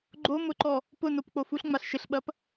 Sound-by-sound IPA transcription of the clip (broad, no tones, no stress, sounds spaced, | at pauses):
ɡ͡ǃ o m ʊ ǃ ɔ | p ʊ n o p k͡p o f u ɬ ŋ͡m a ɬ ʃ ɪ ɬ ɓ ɐ p